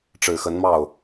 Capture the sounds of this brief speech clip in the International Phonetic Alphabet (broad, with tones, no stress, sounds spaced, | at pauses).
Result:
ʈ͡ʂ ɻ̩˨˩ x ə˧˥ n m ɑ˥˩ ʊ̯